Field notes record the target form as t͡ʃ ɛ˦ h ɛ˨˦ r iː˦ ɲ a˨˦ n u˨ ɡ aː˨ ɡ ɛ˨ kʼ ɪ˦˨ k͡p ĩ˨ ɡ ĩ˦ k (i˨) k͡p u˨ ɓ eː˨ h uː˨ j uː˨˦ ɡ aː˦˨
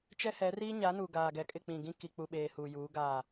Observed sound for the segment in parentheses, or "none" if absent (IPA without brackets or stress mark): i˨